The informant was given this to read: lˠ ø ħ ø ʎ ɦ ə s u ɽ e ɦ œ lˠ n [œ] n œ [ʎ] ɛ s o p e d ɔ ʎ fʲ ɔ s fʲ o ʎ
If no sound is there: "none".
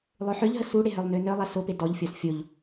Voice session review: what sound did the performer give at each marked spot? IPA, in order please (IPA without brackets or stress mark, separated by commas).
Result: ø, lˠ